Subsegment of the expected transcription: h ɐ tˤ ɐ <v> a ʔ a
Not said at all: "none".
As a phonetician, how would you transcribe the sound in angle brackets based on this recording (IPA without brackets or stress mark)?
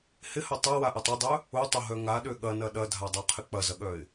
w